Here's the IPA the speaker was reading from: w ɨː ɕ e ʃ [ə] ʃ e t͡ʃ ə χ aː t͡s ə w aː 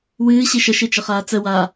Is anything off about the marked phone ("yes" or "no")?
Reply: no